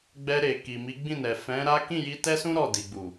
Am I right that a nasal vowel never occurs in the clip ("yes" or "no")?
no